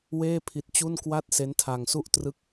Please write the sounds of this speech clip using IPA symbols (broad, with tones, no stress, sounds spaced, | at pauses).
w eː˥˩ pʰ i˦˥ t̚ t͡ɕ u˥˩ n k w a˥˩ t̚ s e˦˥ n tʰ a˧ ŋ s u˥˩ ʔ t r ɯ˥˩ k̚